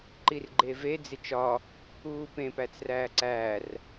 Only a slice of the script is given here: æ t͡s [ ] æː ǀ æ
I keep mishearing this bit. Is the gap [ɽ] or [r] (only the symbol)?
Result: r